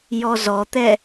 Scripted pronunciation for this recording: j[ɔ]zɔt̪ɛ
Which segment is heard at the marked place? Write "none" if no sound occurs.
ɔ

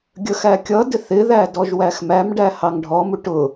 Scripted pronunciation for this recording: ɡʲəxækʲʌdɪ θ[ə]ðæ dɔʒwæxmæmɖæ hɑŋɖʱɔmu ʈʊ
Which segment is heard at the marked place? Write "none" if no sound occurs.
ɪ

